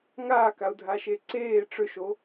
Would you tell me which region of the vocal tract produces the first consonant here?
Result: velum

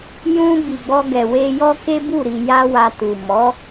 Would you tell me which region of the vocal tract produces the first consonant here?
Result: palate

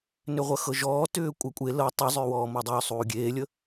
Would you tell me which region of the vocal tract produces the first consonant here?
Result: tongue tip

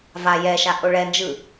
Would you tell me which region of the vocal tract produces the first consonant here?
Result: lips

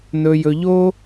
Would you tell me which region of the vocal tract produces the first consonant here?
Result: tongue tip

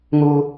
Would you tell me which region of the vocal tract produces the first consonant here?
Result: velum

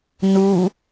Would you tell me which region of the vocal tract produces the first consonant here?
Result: tongue tip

